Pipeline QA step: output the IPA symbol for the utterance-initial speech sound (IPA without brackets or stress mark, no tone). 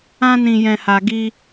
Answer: ã